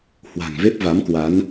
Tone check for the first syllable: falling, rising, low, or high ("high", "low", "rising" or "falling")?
low